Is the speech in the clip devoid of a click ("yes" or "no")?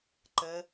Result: no